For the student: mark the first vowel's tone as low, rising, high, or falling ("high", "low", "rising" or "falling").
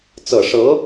low